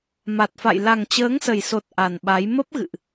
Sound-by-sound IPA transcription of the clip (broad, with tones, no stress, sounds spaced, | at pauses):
m a˨˩ t̚ f a̰˧˨ j l a˨˩ ŋ t͡ɕ əː˨˦ ŋ s ə˨˩ j s o˨˩ t̚ ʔ a˨˩ n ɓ a˨˦ j m ə˦˥ p̚ ɣ ɨ̰˧˨ ʔ